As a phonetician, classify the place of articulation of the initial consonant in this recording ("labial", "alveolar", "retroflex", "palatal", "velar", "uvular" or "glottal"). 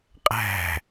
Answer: uvular